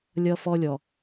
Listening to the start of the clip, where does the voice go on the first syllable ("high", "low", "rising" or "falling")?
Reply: high